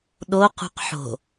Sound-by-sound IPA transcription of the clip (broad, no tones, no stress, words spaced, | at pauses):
ɗoqṳq ħo̤